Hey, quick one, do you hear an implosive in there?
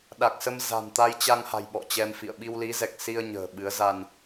yes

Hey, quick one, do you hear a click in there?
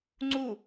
yes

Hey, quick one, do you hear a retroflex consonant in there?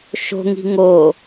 no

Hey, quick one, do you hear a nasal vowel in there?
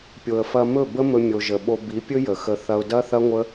no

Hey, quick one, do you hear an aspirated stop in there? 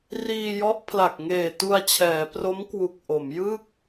yes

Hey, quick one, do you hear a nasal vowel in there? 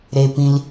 yes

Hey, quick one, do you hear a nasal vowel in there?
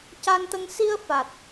no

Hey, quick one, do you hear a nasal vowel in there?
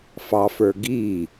no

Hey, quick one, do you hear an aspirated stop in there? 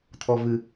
yes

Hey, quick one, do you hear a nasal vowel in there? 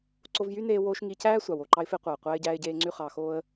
no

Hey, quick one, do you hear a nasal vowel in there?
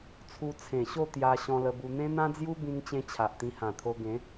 yes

